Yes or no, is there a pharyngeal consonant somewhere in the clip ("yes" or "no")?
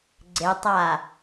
no